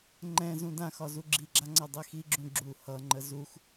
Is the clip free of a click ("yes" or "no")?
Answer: no